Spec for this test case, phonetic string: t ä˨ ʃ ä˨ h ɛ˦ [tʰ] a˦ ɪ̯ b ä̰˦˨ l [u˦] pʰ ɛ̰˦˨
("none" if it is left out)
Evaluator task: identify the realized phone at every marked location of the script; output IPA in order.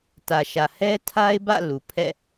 tʰ, u˨

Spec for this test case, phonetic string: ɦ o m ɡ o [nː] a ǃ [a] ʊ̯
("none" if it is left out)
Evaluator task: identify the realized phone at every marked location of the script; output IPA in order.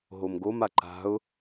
m, a̤

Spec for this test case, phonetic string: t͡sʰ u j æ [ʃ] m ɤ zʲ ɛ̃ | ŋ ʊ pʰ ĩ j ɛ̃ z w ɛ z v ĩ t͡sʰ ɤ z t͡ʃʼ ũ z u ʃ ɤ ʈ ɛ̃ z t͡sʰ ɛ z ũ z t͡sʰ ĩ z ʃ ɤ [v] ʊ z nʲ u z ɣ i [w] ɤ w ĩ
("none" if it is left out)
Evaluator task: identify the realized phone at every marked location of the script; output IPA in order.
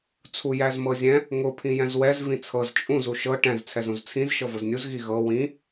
z, v, ɣ

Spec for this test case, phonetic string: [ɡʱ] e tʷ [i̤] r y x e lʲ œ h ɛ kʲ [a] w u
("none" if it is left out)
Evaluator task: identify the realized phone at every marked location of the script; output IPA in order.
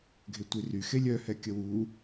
ɡʱ, i, ə

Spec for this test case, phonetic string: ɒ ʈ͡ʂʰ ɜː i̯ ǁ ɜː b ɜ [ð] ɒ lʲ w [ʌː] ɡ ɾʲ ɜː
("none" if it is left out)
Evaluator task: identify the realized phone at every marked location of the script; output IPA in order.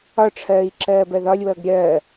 ð, ʌː

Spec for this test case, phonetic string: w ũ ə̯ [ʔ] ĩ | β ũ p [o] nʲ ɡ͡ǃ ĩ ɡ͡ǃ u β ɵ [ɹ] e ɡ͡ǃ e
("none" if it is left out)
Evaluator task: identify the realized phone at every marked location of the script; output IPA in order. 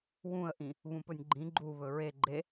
ʔ, ɵ, ɹ

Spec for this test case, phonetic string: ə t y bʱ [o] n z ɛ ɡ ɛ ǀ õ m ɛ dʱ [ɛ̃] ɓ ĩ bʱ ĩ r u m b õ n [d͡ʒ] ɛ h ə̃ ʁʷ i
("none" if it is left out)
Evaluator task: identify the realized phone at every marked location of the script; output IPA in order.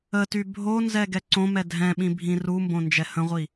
o, ɛ̃, d͡ʒ

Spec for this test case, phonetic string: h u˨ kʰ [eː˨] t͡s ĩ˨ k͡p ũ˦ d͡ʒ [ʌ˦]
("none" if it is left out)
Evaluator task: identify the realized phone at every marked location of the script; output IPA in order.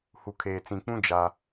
eː˨, a˦

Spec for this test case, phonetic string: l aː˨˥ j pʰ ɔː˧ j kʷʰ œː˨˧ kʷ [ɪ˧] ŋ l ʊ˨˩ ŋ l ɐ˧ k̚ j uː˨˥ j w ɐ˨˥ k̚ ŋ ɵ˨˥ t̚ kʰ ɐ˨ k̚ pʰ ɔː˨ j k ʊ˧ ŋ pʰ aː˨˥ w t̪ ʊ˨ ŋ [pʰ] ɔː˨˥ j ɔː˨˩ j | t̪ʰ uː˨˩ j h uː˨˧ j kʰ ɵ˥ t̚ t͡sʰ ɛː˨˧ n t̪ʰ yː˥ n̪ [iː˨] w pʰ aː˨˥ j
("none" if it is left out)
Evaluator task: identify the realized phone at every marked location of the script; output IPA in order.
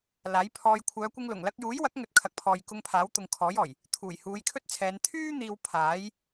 ɪ˧, kʰ, iː˨

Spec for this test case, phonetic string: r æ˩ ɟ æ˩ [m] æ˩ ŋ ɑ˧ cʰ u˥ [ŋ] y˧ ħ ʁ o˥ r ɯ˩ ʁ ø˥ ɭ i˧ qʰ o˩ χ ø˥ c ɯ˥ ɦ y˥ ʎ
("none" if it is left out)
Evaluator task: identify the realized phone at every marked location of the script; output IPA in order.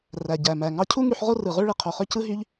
m, ŋ

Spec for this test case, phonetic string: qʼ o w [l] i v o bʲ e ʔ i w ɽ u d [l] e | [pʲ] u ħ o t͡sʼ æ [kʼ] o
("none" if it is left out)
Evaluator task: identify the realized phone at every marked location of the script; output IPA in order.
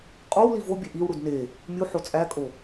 l, n, mʲ, kʼ

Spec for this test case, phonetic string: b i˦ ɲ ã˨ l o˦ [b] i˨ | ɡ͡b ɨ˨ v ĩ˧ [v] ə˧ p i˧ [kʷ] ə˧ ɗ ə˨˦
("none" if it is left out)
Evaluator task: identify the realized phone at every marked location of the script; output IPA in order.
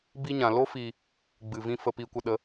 f, f, kʷ

